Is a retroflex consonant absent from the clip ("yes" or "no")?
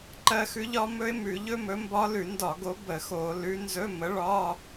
no